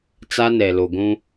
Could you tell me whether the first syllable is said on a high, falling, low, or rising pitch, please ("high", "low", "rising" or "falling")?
high